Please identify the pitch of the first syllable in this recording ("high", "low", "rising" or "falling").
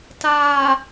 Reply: low